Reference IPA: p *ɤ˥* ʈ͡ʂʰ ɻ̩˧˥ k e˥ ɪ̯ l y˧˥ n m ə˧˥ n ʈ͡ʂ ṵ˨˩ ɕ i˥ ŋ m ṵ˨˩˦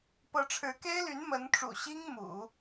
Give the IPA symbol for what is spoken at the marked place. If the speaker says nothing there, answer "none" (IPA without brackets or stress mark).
ɤ˧˥